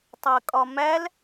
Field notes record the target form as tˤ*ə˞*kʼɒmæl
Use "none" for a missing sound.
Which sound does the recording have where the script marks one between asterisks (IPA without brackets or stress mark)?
ɜ